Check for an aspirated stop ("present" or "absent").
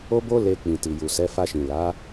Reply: absent